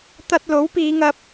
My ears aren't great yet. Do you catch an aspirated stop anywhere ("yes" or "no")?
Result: no